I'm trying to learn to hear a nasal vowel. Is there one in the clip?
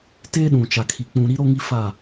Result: yes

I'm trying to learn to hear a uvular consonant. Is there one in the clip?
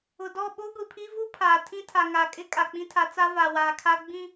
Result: no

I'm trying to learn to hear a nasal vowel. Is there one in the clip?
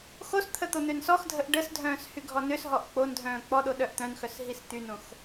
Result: yes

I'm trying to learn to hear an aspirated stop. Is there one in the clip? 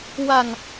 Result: no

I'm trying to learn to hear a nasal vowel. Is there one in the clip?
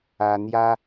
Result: no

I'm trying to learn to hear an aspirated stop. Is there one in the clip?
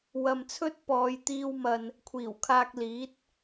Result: yes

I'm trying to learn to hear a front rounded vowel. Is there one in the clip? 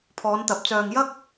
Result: yes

